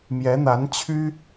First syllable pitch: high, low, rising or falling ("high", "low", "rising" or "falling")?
rising